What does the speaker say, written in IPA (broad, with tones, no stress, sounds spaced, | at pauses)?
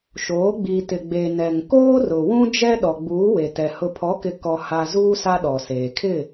ʃ oː˨˦ ɡ͡b i˨ t ɪ˨ ɡ͡b e˨ n ɛ˨ ŋ k oː˦ r ʊ˨ w ũ˦ d͡ʒ ɛ˦ ɗ ɔ˨ ɡ͡b uː˨˦ w e˨ t ɛ˨ h ʊ˨ pʰ ɔ˨˦ k ɪ˨ k ɔ˨ h a˨ z uː˦ s a˦ ɗ ɔ˨ s eː˨ kʰ ɪ˦˨